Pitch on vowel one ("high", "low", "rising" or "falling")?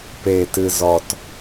low